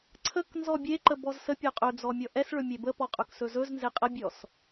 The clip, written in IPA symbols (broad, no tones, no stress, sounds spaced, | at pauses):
ǀʰ ə k n z ɔ bʲ e ǃ ə b ɔ z s ə pʲ ɔ qʼ ɵ d͡z ɔ mʲ ɔ ʔ ɛ s ɭ ɵ mʲ e b ə p ɔ qʼ ɵ k s ɵ z ɵ z n z e qʼ ə bʲ ɔ s